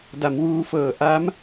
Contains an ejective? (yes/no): no